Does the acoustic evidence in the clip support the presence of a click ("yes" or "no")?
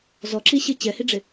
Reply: yes